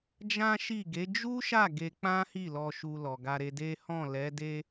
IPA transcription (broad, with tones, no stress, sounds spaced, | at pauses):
d͡ʒ ã˦ ʃ i˦˨ ɡ e˨˦ d͡ʒ u˦ ʃ a˦˨ ɡ e˧ k͡p ã˦ h i˦˨ l ɔ˨ ʃ u˨ l ɔ˨ ɡ a˧ ɾ e˧ d e˦ h ɔ̃˦˨ l ɛ˨˦ d e˦